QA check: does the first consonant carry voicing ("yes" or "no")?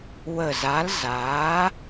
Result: yes